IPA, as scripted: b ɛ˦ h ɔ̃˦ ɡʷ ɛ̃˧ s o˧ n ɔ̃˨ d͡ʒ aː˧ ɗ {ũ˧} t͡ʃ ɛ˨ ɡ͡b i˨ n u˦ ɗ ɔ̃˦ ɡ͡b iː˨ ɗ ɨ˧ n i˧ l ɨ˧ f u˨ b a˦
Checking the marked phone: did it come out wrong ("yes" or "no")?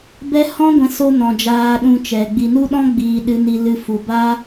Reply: no